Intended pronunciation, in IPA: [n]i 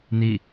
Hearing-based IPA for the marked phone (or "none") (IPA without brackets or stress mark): n